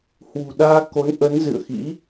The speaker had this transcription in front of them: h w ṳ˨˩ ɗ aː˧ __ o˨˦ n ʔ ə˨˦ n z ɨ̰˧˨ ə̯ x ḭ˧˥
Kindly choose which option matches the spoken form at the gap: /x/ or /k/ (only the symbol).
k